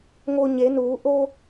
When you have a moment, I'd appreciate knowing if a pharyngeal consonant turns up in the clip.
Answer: no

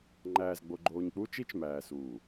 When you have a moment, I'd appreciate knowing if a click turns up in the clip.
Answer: yes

